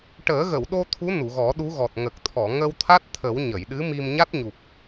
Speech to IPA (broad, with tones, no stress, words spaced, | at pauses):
ʈəː˨˩˦ɣə˨˩˨wɗo˧ t̪ʰu˧˥nu˨˩˨ɣɔ˨˩˦ ɗu˧˥ɣɔ˨˩t̚ ŋə˨˩k̚t̪ʰɔ˨˩˨ ŋə˧wt̪ʰa˦˥t̚t̪ʰə˨˩˦w ɲə˨˩˨jɗɨ˧˥mi˧m ɲa˦˥t̚ɲu˨˩p̚